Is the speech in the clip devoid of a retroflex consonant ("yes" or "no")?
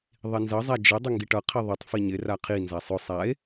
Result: no